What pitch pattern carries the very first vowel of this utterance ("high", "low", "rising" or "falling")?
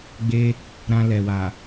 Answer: high